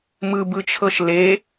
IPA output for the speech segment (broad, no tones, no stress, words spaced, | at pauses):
mɯbɯt͡ʃʰɤʃ le